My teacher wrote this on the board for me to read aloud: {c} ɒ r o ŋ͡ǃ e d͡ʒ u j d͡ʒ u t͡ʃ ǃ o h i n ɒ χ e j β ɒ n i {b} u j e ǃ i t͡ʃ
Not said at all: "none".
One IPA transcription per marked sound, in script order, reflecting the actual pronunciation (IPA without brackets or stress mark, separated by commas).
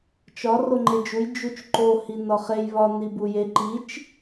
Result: t͡ʃ, b